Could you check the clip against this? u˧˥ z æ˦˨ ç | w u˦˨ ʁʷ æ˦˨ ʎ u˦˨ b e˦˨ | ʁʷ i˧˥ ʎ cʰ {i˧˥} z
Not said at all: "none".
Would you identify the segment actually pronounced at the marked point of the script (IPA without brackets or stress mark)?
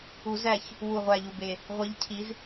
i˧˥